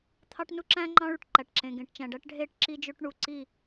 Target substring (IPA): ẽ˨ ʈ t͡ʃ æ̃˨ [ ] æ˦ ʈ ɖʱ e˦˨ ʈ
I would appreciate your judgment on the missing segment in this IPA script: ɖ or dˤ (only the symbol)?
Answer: ɖ